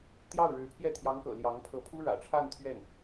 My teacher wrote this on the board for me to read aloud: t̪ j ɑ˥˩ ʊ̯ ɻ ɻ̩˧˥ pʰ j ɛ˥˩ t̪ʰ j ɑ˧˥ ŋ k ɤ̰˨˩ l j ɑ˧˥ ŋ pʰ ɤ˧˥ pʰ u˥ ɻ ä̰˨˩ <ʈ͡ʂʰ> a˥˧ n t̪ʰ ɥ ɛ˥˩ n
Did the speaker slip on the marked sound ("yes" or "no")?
no